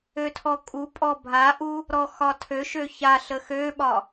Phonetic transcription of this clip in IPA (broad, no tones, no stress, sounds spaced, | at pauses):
ø tʰ ɔ kʼ u pʼ ɔ bʱ a ʔ u | ɾ ɔ x ɒ tʰ ø ʃ ø ç a ɬ ə x ø ɓ ɒ